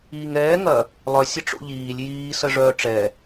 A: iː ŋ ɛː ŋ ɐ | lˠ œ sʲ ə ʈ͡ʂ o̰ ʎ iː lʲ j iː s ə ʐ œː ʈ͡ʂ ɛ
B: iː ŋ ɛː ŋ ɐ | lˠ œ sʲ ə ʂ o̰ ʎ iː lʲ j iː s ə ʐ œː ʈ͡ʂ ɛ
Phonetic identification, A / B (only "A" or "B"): A